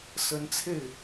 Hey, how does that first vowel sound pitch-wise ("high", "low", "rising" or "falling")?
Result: rising